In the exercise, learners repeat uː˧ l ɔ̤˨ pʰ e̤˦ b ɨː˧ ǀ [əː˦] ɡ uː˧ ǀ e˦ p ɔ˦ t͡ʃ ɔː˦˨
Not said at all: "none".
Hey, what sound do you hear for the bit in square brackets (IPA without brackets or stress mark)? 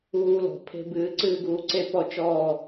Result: ɨː˦